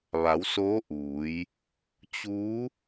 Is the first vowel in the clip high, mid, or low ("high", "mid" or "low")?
low